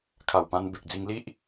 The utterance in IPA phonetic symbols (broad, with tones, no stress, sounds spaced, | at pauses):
kʰ a˨˩ w p ã˧ n b e˨ k̚ d͡z i˧ ŋ l i˦ ʔ